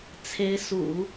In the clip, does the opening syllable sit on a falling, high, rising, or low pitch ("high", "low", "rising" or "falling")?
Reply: rising